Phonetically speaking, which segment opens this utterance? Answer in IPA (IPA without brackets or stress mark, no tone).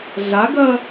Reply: ɮ